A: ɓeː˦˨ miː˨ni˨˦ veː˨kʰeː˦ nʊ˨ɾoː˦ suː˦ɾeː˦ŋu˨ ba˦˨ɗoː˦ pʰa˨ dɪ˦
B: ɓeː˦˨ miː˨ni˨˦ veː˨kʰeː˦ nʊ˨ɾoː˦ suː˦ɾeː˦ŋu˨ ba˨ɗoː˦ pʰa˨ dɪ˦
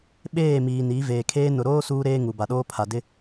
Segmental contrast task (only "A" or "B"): B